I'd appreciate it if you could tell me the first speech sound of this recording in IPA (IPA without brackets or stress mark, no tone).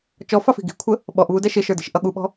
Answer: t͡ʃ